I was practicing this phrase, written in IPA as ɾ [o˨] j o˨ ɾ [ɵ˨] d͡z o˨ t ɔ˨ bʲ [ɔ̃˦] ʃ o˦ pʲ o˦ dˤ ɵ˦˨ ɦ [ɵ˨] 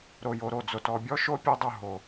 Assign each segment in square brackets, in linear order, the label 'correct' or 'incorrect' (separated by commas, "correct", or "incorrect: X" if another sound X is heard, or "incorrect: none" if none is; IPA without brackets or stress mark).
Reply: correct, incorrect: o˨, incorrect: ɔ˦, incorrect: o˨